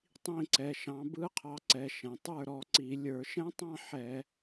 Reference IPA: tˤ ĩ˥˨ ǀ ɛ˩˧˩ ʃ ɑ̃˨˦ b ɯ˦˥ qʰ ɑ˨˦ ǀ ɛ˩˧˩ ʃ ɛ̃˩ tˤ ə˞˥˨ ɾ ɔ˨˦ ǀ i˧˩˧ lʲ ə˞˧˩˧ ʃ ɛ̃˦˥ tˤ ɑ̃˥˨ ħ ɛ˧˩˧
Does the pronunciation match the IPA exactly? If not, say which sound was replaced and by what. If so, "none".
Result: none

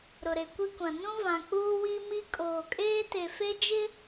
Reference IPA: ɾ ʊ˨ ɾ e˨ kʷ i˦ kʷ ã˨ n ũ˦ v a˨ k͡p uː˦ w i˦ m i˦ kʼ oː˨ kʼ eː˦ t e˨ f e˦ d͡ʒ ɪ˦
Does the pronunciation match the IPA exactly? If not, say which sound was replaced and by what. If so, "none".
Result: a˨ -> ã˨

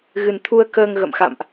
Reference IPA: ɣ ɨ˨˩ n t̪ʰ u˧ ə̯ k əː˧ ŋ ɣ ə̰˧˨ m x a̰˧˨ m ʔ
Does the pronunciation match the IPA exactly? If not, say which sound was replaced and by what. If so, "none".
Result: none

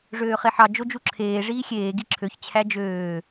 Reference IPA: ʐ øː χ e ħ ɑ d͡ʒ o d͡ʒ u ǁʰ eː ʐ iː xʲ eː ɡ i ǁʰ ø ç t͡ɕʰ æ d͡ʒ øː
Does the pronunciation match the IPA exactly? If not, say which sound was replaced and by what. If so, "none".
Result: none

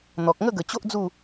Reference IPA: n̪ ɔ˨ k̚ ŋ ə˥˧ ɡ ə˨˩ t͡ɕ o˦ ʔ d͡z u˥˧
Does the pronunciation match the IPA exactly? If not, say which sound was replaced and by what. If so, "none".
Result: none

